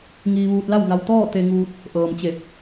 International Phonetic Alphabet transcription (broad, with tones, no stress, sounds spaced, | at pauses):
ŋ iː˧ ʋ uː˧ t̚ l a˥˨ w ŋ a˧ w t̪ ɔː˥˨ t̪ e˧ ŋ uː˧ t̚ | ʔ ɤː˩ m t͡ɕ e˧˩ p̚